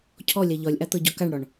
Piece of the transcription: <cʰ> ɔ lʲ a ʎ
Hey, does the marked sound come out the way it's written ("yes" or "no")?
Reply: yes